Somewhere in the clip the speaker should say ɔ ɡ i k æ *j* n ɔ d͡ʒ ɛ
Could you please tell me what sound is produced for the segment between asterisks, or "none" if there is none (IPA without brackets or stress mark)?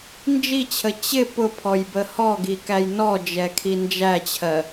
j